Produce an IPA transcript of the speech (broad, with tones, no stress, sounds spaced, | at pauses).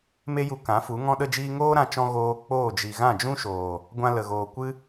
m e˦ j u˧ k ã˨˦ f u˨˦ ŋ ɔ̃˧ ɗ ə˧ d͡ʒ iː˧ ŋ oː˦ ɾ ã˧ t͡ʃ ɔ̃˧ ɣ oː˧ k͡p oː˦˨ d͡ʒ i˨ ɣ ã˦˨ d͡ʒ ũ˦ ʃ oː˨ | ɡʷ ã˧ l ə˨ ɣ oː˨ kʷ ɨ˦